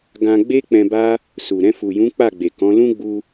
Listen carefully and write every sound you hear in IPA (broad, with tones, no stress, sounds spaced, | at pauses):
ɡ ã˧ ɡ͡b e˦ k͡p ɛ̃˧ b a˦ | s u˨ ɾ ɛ̃˧ f u˨ j ũ˨˦ k͡p a˦˨ ɡ͡b e˨ k ɔ̃˨˦ l ũ˦ ɡ͡b u˧